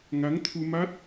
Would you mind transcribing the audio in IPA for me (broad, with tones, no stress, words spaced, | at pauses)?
ŋa˨˦ŋ t̪ʰu˧ma˦˥t̚